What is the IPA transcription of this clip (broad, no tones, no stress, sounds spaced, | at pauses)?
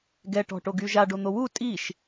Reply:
ɡ ɛ ʈ ɔ̤ ʈ o ɡ y ʒ a ɖ o n̪ o w u tʼ i ʃ